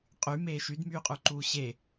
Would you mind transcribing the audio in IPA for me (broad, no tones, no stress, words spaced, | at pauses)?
qʼymeː ʃydmyːqʼuǃuː ɕe